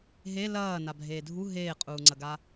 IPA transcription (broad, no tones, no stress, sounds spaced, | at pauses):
ɦ e l ɐː n a bʱ eː dʱ u ɦ eː qʼ uː ŋ͡ǀ ɐ ɡ a